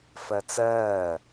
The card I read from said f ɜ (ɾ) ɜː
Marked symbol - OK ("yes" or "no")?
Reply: no